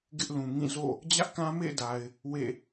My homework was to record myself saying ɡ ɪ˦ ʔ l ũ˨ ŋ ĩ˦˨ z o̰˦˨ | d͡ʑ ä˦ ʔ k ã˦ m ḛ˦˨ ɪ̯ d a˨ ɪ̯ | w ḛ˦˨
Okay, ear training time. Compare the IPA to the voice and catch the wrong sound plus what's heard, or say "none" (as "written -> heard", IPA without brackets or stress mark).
none